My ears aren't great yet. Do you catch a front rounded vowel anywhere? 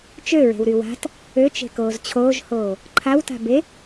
yes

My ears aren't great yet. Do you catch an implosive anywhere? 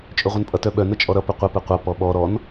yes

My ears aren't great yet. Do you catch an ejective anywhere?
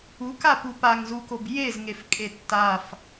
yes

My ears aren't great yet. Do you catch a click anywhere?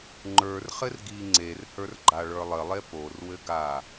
yes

